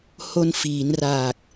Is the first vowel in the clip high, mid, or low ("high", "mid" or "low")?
mid